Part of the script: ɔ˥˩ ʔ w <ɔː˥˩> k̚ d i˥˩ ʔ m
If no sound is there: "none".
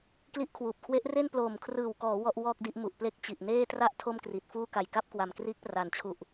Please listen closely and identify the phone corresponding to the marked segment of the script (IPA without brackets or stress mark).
ɔː˥˩